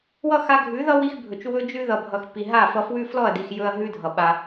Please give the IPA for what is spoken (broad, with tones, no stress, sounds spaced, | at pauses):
w ʌ˦ x a˧ ɡʱ ʉ˨˦ ð ʌ˦ w i˧ x bʱ ɵ˨ t͡ʃ w ɵ˧ d͡ʒ ʉ˧ ð ʌ˨ bʱ ʌ˨ x p i˨ ɦ a˦˨ f ʌ˧ f w ʉ˦ f l ɔ˦˨ ɐ̯ d i˨ x j ɵ˦ ɐ̯ ɦ ʉ˦ dʱ ʌ˨ ɓ a˧